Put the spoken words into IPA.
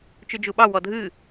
t͡ʃ ʉ d͡ʒ u ɓ ɑ w ɔ dʱ ɨ

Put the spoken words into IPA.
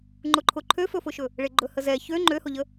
ŋ͡ǃ ʊ ǃʰ ʊ ǃʰ ø f ɵ f ʊ ʃ ɵ | ɭ e ɡ͡ǃ ɵ h ə z ɛ ç ø ŋ͡ǃ ø h ʊ ʎ ə

